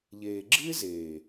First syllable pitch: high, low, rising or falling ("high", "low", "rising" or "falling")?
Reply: low